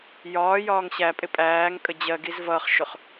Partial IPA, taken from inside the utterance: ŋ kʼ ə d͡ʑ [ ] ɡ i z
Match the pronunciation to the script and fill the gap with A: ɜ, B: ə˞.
A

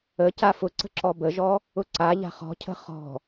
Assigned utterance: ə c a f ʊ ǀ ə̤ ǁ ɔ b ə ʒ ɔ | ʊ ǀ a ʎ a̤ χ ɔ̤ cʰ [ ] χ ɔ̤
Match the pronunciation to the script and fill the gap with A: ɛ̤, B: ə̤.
B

